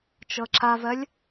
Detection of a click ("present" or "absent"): present